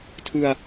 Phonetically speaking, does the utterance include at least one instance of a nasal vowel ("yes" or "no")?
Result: no